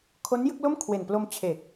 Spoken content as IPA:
kʰ o˦˥ n j ɯ˥˩ k̚ l o˥˩ m kʰ w e˨˩ n p l o˧ m t͡ɕʰ e˨˩ k̚

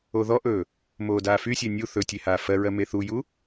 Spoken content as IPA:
o ð ɔ ʔ ɵː | m oː d aː f y sʲ ɛ nʲ u θ ɵ tʲ e h aː f ɜ ɹ ɜ m e θ u j u

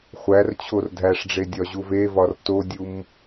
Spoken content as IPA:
χʷ æ r t͡ɕʰ o r dʱ æ ʂ ɖ͡ʐ e dʲ ɒ ʑ u v e v ɒ r t o dʲ u m

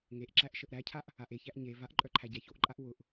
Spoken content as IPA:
ŋ e ʔ ǁ æ ʔ ʃ ə ʔ ɾ æ cʰ a ʔ | a ʔ e ç æ ʔ ɲ e v a ʔ ǃʼ œ ǃʰ æ ɟ æ ç o ʔ ǃʼ a ʔ w ʊ ʔ

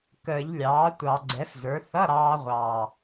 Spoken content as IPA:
k əː˨˩˦ ʎ lʲ ɑː˩˥ tʷ ɑ˨˩˦ ɡ͡ǀ ɛ˩˥ f z ə˞˩˥ θ ʌ˧˥˧ ɾ ɑː˧ ʁʷ ɑː˨˩

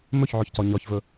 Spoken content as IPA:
m ɵ ç ʕ ɔ ç c ɒ ɲ ɒ ç v ɵ

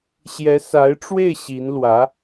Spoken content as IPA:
ɕ j ɛ˧˥ s a˧˥ ɪ̯ ʈ͡ʂ w e˥˩ ɪ̯ ɕ i˧˥ n l w ä˧˥

